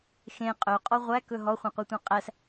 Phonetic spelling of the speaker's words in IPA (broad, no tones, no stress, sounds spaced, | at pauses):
x ẽ qʼ œ qʼ ɔ ʁʷ æ k ɵ ɦ ɔ χʷ œ̃ qʷ i tʷ ɛ̃ qʼ æ s